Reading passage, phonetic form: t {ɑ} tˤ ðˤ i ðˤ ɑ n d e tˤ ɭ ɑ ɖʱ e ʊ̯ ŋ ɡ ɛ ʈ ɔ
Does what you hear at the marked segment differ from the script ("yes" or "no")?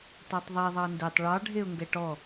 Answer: no